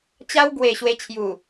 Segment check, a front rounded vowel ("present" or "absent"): absent